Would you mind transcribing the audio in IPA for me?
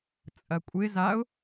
t͡sʼ ɐ kʷʼ ɪ z a ʊ̯

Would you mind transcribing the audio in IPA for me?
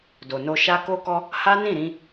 d o˨ n o˧ ʃ a˦ k o˦ k ɔ˦ | h a˦ n ĩ˦˨ ɾ ĩ˧

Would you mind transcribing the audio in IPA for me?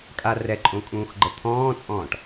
kʼ a r ɛ ǃʼ õ kʼ ũː x ɡ͡ǃ ɤ t̪ʰ ɔ̃ː t͡sʼ ɔ̃ː ʈ

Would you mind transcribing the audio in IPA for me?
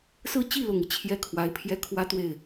s ɹ̩˥˧ t͡ɕ i˥˩ l ʊ˨˩ ŋ i˦ t͡ɕʰ j ɛ˥ kʰ w a˧˥ ɪ̯ pʰ j ɛ˥ kʰ w ä˥ t̪ w e˥˩ ɪ̯

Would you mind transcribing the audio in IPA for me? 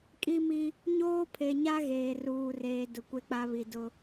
kʼ i˦ m i˦ | ɲ oː˦ pʰ e˨ ɲ a˦ ɣ eː˨ r uː˨ r eː˨ d ʊ˨ kʷ e˦ k͡p a˦ β i˨ d ʊ˦

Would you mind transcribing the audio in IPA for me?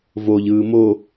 v o ʎ ɯː m o

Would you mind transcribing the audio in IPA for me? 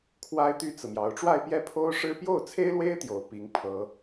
kʰ w a˥ ɪ̯ t̪ y˥ t͡s ɹ̩˨ m j ɑ˧˥ ʊ̯ ʈ͡ʂ w a˥˧ ɪ̯ p j ɛ˥˩ pʰ o˥ ʊ̯ ʂ ɻ̩˥ p j o˥˩ ʊ̯ t͡sʰ e˥ ɪ̯ l w e˥ ɪ̯ t̪ j o˨˩ ʊ̯ p i˧˥ ŋ pʰ ɤ˥

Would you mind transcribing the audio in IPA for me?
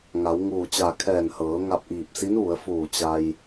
ŋ a˩˧ w ŋ uː˧˩ t͡ɕ a˧˩ kʰ ɛː˧˩ n h ɤː˩˧ ŋ a˧ p̚ ʔ iː˧˩ p̚ s i˧˥ n ʋ u˩˧ ə̯ f uː˧˩ t͡ɕ a˧ j

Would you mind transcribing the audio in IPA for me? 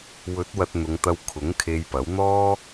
w ɵ˨˥ t̚ w ɐ˧ t̚ n̪ ʊ˨˧ ŋ t̪ ɐ˧ w kʰ ʊ˨˥ ŋ kʰ e˧ j p ɐ˨˥ w n̪ ɔː˥

